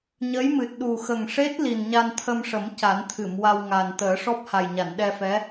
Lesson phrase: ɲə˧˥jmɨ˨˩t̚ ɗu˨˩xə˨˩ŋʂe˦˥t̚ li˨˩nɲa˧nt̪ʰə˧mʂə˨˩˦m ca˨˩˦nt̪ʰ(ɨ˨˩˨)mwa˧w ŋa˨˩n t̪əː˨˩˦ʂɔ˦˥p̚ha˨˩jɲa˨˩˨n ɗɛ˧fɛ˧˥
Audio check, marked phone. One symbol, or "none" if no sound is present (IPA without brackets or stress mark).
ɨ˨˩˨